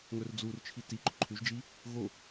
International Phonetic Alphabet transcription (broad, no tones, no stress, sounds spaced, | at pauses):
ŋ ɵ r d͡z u r t͡ʃʰ i t i ǃ ɵ ǃʰ ʉ ʒ d͡ʒ i | ɣ o